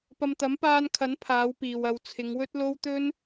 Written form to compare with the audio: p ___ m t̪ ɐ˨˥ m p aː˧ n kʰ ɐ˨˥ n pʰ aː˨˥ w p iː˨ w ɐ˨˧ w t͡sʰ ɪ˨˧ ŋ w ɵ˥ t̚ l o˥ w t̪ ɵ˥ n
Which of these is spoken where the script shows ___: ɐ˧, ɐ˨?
ɐ˧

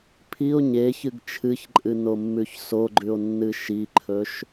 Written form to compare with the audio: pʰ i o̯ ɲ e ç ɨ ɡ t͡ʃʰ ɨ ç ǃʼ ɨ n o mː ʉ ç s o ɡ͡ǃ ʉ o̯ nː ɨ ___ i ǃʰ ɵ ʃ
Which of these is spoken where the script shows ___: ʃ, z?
ʃ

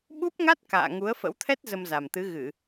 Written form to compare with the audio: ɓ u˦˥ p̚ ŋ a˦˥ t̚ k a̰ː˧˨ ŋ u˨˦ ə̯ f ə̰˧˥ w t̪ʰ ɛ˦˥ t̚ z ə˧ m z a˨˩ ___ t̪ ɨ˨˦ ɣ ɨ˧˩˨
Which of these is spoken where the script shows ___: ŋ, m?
m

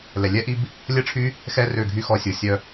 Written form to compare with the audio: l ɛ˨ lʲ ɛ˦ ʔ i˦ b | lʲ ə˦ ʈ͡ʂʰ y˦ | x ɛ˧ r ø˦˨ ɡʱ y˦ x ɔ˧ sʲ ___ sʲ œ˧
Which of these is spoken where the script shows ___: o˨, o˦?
o˨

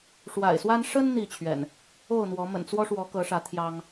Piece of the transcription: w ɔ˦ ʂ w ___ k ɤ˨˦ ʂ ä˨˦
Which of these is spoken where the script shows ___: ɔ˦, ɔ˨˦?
ɔ˨˦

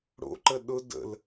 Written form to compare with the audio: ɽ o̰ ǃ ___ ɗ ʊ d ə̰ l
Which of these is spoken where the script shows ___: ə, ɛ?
ə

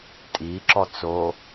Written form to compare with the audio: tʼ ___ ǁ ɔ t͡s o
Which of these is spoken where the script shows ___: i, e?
i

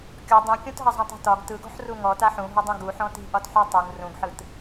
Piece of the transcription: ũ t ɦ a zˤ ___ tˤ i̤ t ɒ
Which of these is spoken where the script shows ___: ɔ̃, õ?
õ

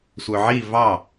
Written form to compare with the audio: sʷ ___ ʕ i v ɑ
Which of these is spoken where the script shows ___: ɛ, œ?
œ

